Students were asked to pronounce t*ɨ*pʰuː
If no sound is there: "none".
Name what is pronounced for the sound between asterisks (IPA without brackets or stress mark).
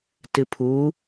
ɨ